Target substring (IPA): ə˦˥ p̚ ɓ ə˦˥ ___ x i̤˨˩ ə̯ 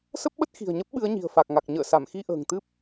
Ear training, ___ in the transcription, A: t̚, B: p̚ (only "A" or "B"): A